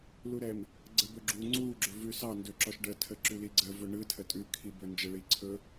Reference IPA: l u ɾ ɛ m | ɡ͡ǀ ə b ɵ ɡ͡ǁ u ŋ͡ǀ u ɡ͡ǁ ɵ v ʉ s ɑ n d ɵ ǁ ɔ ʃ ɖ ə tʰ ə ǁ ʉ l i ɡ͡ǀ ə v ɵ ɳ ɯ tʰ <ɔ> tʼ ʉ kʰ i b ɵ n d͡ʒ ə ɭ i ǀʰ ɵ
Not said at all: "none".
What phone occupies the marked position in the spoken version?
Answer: ə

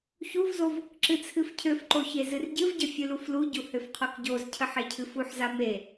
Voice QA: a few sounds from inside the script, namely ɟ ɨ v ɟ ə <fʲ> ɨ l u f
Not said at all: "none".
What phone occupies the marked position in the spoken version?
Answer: fʲ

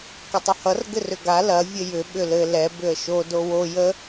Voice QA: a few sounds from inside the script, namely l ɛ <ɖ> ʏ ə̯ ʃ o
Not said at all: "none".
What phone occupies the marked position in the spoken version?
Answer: b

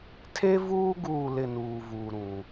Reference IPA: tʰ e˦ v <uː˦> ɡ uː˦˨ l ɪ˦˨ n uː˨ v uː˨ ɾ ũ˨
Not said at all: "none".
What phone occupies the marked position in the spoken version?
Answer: uː˦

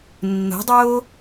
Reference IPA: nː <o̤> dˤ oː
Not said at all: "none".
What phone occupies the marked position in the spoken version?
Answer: o̤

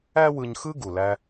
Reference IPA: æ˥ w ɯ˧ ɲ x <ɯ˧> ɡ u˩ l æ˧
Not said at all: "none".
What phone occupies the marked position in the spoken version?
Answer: ɯ˥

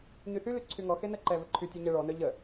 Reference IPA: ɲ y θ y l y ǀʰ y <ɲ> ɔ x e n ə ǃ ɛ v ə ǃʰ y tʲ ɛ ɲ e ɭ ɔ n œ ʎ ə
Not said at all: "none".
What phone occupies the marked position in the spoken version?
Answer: ŋ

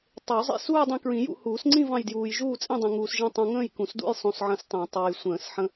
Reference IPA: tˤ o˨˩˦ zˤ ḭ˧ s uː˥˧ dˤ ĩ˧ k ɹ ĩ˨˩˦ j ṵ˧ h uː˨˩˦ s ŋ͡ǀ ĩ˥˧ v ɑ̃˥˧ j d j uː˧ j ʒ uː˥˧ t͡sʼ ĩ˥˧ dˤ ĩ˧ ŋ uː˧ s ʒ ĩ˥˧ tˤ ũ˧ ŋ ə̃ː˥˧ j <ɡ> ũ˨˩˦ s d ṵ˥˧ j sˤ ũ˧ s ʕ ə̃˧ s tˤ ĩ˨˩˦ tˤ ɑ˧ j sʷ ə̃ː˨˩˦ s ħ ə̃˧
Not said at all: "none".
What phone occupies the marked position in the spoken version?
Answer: k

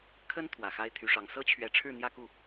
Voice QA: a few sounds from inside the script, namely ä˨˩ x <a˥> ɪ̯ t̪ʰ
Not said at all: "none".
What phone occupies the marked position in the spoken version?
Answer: a˥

